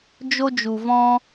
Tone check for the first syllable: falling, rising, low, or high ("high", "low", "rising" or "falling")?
high